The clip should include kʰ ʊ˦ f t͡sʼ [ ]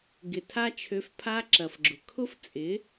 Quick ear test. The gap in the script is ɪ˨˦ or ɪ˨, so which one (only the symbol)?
ɪ˨˦